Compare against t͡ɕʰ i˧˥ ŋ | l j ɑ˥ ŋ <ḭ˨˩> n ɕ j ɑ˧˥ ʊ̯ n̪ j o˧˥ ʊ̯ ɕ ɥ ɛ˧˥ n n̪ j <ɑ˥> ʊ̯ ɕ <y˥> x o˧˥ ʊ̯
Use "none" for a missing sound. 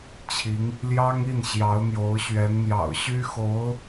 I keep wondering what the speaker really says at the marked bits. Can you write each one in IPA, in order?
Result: i˥˩, ɑ̰˨˩, y˥

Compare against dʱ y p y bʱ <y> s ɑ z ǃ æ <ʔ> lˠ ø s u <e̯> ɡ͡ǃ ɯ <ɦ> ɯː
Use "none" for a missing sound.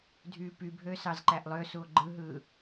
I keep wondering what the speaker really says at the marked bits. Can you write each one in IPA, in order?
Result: ø, ʔ, o̯, ɦ

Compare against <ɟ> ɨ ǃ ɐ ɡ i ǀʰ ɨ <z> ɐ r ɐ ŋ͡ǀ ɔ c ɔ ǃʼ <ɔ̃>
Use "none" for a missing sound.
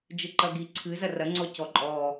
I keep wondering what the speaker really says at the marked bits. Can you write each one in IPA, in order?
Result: d͡ʒ, z, ɔ

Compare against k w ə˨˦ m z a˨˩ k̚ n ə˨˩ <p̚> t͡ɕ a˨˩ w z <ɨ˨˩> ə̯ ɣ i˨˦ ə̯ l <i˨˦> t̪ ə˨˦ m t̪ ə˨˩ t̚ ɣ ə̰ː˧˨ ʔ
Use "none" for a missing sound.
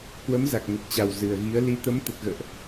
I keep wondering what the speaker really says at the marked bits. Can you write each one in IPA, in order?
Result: t̚, ɨ˨˩, i˨˦

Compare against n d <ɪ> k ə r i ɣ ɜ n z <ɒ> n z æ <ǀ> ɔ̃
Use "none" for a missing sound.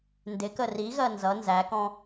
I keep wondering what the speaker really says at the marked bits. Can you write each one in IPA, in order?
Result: ɪ, ʌ, k

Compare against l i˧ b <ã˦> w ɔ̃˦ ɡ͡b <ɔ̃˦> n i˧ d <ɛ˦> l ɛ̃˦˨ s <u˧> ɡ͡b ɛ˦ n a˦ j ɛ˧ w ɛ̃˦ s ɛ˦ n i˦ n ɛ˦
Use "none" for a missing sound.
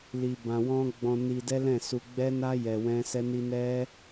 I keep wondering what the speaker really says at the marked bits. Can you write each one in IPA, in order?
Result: ã˧, ɔ̃˧, ɛ˦, u˧

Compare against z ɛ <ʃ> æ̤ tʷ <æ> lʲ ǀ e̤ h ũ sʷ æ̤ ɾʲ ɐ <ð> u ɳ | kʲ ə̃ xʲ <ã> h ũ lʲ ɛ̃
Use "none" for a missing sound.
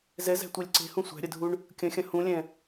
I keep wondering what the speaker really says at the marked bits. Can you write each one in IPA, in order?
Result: z, æ, dʱ, ɐ̃

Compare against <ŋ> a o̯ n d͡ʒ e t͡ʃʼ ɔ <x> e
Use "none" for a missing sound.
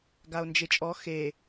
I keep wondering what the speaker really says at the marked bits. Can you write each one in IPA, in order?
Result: ɡ, x

